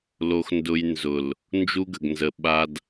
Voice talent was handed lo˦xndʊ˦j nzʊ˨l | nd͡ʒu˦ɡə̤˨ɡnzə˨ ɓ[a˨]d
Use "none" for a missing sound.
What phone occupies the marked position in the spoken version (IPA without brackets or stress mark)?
a˨